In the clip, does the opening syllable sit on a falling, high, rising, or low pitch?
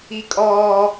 high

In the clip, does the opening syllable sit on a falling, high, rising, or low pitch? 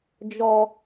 low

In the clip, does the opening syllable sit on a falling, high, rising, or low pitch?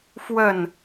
falling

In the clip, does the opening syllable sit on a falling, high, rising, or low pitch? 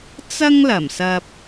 high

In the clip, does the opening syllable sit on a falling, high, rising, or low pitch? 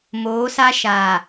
rising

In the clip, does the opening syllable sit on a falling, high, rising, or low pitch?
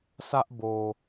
high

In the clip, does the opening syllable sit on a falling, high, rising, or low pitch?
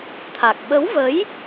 low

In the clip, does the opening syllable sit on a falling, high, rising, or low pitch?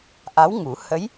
rising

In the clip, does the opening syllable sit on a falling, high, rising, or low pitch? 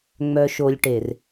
low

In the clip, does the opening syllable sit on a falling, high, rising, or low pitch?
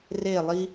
falling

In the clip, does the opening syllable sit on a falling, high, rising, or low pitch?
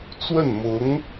falling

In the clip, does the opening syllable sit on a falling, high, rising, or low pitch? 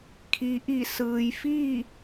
low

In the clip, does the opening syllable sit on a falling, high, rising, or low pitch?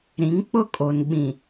rising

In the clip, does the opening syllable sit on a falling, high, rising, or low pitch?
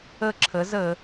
high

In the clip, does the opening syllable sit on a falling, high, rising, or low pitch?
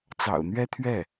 low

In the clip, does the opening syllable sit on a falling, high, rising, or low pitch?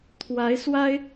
rising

